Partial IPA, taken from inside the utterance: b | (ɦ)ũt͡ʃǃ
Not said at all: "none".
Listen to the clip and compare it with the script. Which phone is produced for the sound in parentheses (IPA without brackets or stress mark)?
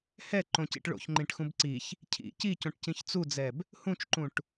h